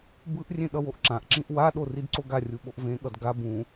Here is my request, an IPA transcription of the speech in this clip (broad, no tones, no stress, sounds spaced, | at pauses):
b ɯ ʔ rʲ ẽ ɗ ʌ w o ʔ ǁ ã ʔ ǁ ĩ ʔ w a ɗ o r i d ǀ o ɡ a rʲ u ɓ o ʔ v ẽ ɠ ʌ d ɡ a b ũ